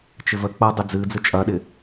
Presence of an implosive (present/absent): present